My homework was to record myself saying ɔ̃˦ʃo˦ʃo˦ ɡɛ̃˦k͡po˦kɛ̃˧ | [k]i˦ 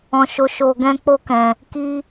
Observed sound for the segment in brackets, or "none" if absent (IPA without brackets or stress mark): k